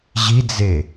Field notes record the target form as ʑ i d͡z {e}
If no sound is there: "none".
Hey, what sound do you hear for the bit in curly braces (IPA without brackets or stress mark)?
e